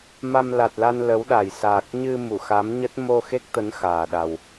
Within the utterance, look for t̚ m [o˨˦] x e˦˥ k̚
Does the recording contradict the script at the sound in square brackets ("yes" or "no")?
yes